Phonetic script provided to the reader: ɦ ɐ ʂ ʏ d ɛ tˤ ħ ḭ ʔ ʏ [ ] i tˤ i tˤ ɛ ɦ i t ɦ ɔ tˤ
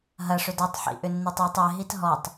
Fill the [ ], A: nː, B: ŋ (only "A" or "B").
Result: A